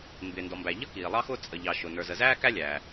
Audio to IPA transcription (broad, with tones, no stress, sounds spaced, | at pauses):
m b ɪː˩ n d ɔ˩ m b æ˩ ʎ ʌ˥ k iː˩ lˠ ɑ˥ x ʊː˥ t͡sʼ ə˩ ʎ ɑ˩ ʃ ʊ˩ n ə˞˩ z ə˩ z æː˥ k æ˥ lʲ æː˩